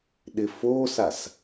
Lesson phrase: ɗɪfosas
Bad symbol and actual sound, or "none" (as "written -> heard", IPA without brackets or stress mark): none